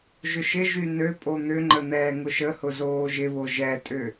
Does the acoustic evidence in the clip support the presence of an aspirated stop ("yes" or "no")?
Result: no